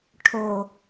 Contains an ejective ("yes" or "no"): no